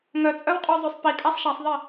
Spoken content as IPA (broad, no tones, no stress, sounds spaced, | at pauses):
ŋ œ t͡sʼ œ w qʼ ø zˤ ø sˤ p i kʼ a sˤ ʃ a sˤ ðˤ i